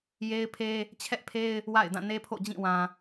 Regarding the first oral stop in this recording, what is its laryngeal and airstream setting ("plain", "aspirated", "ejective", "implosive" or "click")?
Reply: aspirated